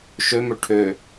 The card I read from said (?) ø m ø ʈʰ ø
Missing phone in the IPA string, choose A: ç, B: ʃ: B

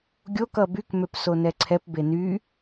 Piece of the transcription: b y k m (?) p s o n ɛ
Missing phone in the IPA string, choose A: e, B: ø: B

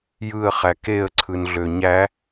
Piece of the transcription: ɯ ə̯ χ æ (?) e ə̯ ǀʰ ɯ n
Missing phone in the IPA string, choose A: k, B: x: A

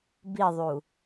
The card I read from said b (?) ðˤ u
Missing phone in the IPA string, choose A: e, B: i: B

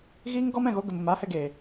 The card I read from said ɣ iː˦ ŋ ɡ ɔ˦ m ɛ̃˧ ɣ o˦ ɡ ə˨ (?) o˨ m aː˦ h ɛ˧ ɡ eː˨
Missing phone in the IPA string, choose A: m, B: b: A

